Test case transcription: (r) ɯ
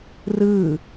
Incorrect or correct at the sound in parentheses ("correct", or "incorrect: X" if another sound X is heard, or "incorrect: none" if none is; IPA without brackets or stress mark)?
correct